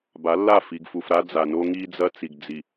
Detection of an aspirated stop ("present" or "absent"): absent